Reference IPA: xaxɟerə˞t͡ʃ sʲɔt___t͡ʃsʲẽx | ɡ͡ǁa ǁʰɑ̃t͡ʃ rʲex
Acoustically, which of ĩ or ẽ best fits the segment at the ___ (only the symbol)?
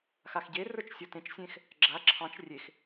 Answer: ẽ